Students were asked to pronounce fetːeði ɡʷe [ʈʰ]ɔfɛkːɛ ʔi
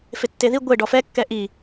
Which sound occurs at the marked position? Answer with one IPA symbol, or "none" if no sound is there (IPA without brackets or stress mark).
ɖ